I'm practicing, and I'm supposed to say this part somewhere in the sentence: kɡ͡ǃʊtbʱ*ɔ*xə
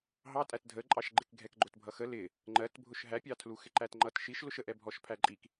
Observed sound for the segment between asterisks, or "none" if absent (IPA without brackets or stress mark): ʌ